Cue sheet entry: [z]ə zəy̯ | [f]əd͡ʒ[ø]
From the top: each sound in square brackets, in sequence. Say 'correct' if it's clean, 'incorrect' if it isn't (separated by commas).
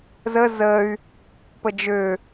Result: correct, incorrect, correct